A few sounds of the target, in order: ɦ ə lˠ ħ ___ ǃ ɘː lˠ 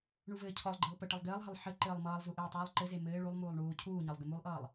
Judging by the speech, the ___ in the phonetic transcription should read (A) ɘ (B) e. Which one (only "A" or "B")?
A